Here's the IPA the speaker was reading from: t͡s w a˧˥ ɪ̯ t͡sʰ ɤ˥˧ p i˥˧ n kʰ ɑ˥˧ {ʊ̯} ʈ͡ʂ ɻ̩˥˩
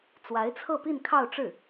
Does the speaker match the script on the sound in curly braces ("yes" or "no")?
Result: yes